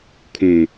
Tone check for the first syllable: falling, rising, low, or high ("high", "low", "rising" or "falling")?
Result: low